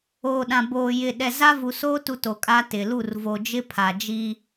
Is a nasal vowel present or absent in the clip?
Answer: present